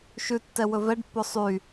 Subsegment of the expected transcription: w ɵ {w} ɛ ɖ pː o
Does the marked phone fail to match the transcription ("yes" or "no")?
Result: yes